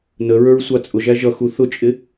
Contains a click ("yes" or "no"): no